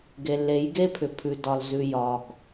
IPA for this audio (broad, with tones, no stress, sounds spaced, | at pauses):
ɡ e˨ lː e˨˦ j ɡ e˦ pʰ ʏ˨ pʰ ʉ˨ d ɒ˨ l z ʉ˨ j ɒ˨ ɡ